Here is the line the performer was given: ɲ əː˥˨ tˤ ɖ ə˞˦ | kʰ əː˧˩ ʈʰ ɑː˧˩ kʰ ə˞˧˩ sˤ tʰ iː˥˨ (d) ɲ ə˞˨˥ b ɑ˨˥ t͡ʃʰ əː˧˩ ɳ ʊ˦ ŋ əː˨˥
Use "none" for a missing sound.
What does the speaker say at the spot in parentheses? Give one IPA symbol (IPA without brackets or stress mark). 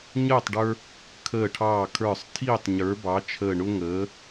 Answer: tˤ